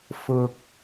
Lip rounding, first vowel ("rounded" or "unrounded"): rounded